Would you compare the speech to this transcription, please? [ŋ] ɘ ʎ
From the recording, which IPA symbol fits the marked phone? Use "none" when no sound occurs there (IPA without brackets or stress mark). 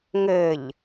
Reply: ŋ